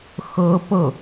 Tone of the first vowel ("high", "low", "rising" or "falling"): high